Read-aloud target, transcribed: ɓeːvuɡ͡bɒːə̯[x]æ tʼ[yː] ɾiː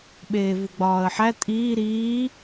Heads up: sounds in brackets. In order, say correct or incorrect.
incorrect, incorrect

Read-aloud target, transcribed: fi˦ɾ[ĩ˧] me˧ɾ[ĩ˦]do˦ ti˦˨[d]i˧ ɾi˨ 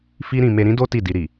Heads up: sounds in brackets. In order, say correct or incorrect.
correct, correct, correct

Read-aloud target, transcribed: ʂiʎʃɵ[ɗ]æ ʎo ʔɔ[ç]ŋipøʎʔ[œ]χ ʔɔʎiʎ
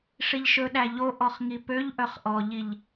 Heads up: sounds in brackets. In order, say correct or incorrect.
correct, incorrect, correct

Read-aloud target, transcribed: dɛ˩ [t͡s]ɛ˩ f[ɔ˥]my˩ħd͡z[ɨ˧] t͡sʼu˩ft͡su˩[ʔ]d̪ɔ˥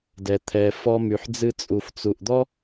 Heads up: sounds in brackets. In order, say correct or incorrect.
incorrect, incorrect, correct, correct

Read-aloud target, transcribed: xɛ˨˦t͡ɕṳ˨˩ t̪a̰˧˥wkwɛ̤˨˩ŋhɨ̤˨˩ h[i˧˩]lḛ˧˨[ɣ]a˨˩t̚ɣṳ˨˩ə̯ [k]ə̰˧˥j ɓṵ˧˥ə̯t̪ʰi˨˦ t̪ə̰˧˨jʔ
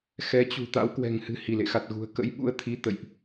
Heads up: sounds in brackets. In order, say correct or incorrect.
correct, incorrect, correct

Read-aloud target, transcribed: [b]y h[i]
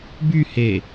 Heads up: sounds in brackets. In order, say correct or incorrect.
correct, incorrect

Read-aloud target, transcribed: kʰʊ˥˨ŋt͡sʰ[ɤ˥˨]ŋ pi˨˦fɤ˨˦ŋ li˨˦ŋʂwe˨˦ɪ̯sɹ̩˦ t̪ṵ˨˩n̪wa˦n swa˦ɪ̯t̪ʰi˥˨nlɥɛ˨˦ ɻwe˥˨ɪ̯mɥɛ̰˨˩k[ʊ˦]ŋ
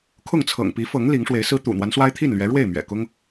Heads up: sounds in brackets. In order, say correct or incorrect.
incorrect, correct

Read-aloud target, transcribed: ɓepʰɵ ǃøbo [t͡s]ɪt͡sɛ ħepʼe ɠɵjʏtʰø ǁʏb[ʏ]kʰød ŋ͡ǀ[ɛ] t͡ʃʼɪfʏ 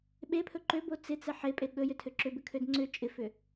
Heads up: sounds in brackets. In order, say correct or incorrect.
correct, correct, incorrect

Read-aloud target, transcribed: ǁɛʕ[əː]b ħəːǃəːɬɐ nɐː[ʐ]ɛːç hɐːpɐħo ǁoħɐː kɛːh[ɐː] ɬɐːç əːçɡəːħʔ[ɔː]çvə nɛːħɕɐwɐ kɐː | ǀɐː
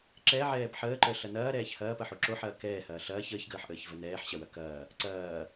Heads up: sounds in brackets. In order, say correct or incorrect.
incorrect, incorrect, correct, incorrect

